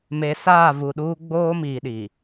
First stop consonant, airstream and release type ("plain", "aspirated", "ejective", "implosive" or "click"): implosive